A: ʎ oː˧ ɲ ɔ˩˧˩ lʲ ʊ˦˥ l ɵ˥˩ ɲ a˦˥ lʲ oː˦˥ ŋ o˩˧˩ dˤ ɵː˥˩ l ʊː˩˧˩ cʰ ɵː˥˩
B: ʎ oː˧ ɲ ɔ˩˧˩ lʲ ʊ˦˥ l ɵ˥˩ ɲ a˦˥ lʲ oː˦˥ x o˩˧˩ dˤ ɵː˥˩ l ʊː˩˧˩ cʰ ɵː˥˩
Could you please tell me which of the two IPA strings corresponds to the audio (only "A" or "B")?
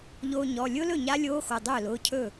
B